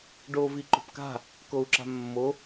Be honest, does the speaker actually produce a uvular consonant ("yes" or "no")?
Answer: no